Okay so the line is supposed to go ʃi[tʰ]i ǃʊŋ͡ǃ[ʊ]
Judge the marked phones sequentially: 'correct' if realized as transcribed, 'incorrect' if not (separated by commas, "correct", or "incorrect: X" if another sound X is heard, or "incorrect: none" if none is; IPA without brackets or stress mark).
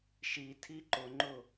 correct, correct